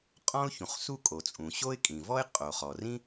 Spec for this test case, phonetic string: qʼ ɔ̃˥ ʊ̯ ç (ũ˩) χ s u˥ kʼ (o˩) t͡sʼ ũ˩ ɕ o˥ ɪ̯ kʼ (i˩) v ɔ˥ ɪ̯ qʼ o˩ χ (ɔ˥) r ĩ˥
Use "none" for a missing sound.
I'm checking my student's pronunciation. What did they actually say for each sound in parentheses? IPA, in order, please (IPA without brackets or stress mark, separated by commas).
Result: ũ˩, o˩, ĩ˩, ɔ˩